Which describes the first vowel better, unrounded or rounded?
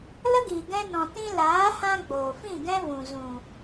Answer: unrounded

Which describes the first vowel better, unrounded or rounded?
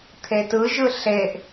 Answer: unrounded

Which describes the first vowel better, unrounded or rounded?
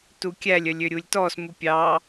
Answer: rounded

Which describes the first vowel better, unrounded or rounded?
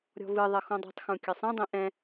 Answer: rounded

